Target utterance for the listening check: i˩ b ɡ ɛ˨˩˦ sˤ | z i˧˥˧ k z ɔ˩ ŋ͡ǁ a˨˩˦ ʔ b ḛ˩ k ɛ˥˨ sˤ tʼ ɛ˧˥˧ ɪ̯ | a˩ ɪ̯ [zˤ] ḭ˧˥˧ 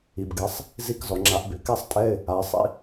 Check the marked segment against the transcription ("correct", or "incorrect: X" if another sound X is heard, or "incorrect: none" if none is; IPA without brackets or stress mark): incorrect: sˤ